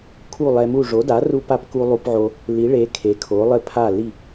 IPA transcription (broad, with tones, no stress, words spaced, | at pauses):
kʰu˥˩lˠɛ˧mu˥˩ ʐo˩˥da˩˥ru˧pa˧p ku˧ lˠu˧pʕo˧ | li˩˥ɭe˩˥ kʰe˩˥kʰo˩˥lˠɘ˥˩ pʰa˥˩ li˥˩